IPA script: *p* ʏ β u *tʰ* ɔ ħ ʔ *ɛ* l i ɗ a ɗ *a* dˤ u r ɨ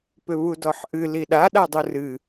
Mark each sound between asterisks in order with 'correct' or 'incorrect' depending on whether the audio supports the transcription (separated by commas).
correct, incorrect, incorrect, correct